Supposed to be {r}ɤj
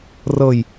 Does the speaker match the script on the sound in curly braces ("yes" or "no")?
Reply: yes